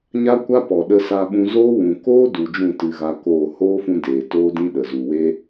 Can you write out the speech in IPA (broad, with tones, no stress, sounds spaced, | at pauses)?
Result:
ɲ a˦ kʷ a˦ p ɔ˨ ɗ ə˧ s a˧ ɓ ũ˧ z oː˦ w ũ˨ k oː˦ d u˨ d͡ʒ ũ˦˨ t ɨ˧ ɣ a˧ k oː˦˨ h oː˦ f ũ˧ d eː˨ t oː˦ d ĩ˦ ɗ ə˨ z u˨ w e˦